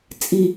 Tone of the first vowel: low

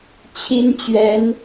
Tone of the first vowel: high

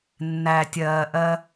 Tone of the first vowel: low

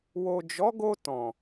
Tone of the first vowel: low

